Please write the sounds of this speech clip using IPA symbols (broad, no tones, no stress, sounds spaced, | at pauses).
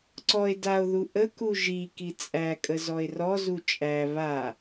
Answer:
ǀ ɔ e̯ d a o̯ ð u ʔ ə k u ʒ i k i t͡sʼ æ kʼ ə z ɔ e̯ r ɔ z u t͡ʃʼ æ β a